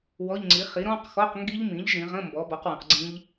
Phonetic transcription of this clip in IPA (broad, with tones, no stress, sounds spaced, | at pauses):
w ɔ˧˥˧ ʎ ŋ͡ǀ i˩˥ χ i˩˥ ɾ ɔ̃˧˥˧ q x ɔ˧˥˧ q ŋ ɡ i˦˥ ʎ m ĩ˩˥ ʎ ʒ ĩ˩˧ ʁ ə̃˧˥˧ m b ɔ˩˧ b ɔ˩˥ q w ə̃˩˧ q ɡ͡ǀ ĩ˦˥ ʎ